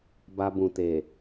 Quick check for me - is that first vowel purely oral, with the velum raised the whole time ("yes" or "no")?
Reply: yes